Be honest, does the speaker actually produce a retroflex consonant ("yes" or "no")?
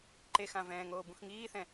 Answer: no